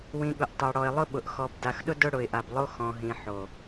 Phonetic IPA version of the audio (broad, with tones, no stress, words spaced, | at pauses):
wĩ˨ɠʊ˨ʔ tˤa˨ɽɔ˨ɪ̯lˠʊ˦ɓʊ˨ʔ xɔ˨b da˨xɗʊ˦ dʊ˦ɽʊ˨ɪ̯ʔa˨blˠo˦ xɔ̃˨ɦĩ˨ ħo˨